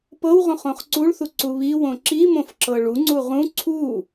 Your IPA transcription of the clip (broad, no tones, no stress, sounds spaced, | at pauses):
p ɤ w ʁ õ χ õ χ ǀ u ɭ θ u ǀ u β i w õ ǁ i m õ f ǁ ɤ ɭ u ŋ͡ǀ u ʁ ũ ǀʰ u